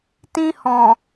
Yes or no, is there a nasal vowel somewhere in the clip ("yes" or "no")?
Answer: yes